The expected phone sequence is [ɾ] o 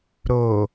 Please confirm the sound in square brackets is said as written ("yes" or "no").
yes